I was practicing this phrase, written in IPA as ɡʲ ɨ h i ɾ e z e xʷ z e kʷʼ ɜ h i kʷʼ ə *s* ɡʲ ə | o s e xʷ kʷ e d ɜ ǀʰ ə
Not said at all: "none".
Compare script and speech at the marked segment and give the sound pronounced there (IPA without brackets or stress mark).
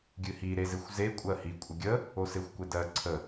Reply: none